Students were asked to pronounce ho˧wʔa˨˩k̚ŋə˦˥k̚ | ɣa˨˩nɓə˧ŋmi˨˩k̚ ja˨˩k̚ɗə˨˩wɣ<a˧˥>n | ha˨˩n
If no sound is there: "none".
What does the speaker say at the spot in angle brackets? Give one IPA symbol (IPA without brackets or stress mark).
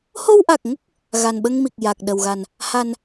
a˨˩